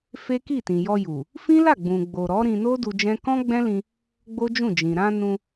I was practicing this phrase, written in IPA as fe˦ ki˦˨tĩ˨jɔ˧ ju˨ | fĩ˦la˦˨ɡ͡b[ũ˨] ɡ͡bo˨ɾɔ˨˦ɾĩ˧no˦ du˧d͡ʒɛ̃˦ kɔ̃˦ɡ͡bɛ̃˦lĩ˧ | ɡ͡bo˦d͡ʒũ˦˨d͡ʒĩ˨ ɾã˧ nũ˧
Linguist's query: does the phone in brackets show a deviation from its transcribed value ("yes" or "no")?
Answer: no